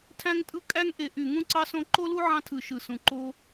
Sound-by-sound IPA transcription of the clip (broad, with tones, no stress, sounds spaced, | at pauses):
tʰ æ̃˥ ŋ tʼ ɯ˥ kʼ æ˥ ŋ ʔ e˧˩ ʔ y˧˩ ŋ ũ˥ ǀ ɑ˥ s õ˥ ǃ o˥ l u˥ ʕ ɑ̃˥ tʰ ɯ˧˩ ʃ ɯ˧˩ s ũ˧˩ ǃ o˥